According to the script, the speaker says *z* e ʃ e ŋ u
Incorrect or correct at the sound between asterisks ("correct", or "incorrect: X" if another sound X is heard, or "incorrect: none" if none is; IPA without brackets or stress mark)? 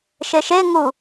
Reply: incorrect: ʃ